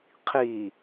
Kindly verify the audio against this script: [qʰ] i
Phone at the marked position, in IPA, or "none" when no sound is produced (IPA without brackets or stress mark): qʰ